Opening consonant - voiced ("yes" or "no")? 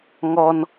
yes